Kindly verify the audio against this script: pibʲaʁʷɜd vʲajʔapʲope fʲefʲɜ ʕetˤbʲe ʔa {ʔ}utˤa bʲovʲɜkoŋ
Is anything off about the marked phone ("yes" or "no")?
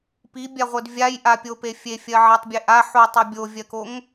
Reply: yes